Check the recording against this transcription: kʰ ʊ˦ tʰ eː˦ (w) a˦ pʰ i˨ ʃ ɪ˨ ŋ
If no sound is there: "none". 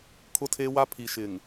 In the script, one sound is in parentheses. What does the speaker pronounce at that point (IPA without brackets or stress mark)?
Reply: w